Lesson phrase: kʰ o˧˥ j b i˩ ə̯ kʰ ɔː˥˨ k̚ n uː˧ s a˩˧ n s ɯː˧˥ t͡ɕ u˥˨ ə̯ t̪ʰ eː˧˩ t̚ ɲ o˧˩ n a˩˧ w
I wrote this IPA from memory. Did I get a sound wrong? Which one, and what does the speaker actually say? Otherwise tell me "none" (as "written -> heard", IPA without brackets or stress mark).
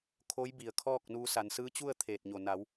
none